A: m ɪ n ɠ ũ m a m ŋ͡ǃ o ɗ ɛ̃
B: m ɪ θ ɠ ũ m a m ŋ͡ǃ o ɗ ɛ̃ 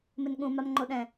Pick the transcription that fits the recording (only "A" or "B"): A